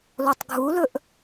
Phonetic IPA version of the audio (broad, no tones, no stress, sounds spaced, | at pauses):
l o tˤ ɡʱ u l ɵ ʔ